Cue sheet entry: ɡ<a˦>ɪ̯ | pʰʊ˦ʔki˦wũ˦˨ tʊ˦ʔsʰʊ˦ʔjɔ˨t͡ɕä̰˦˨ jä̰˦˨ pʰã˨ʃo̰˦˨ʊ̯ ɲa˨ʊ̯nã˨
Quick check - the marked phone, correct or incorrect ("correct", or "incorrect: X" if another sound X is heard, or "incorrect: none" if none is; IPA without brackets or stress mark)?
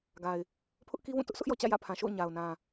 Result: incorrect: a˨